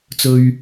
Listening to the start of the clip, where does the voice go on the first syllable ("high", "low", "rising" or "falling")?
low